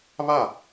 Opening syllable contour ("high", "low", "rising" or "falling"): falling